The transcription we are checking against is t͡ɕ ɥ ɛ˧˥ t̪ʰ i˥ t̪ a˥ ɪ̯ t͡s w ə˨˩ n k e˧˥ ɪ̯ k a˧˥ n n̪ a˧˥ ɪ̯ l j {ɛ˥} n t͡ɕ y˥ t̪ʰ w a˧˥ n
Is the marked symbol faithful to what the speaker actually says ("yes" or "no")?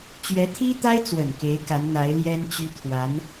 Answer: yes